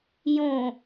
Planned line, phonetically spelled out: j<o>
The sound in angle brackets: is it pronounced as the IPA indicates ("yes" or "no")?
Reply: no